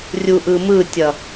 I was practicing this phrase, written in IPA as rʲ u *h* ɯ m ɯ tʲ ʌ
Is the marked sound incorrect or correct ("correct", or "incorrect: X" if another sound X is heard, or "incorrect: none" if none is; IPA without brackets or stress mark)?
incorrect: ʔ